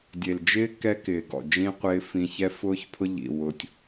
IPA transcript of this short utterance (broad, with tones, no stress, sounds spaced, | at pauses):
dʲ e˨ l d͡ʒ ɪː˦ k ɛ˦ k ɪː˨ ɡ ɔ̰˨ d͡ʒ ĩ˦ qʷ ɪː˦ f ĩ˦ ç ɛ˦ f ʊː˦ ç pʰ ʊ˦ ʎ ḭ˨ w ʊ˦ tʲ